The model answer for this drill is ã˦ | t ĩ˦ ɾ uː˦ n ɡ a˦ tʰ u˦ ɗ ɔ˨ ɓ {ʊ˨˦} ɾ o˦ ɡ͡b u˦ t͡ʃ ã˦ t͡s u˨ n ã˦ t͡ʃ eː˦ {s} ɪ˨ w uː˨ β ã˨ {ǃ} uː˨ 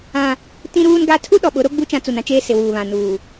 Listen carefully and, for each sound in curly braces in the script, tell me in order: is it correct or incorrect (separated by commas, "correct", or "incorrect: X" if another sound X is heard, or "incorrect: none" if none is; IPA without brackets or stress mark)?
correct, correct, incorrect: n